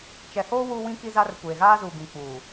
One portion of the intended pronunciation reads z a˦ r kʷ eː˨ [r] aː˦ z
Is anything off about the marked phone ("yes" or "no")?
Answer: yes